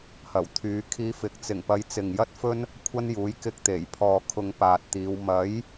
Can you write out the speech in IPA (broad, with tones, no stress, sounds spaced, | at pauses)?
h ɐ˨˩ w t̪ʰ yː˨˧ kʰ iː˧ f ɪ˨˥ k̚ t͡s ɪ˨˩ ŋ p ɐ˨˧ j t͡s ɪ˨ ŋ j ɐ˥ t̚ f ɵ˥ n | kʷʰ ɐ˥ n j uː˨˥ j k ɪ˧ k̚ t̪ e˨˩ j pʰ ɔː˨ kʰ ʊ˧ ŋ p aː˨ t̚ t̪ iː˨˧ w m ɐ˨˥ j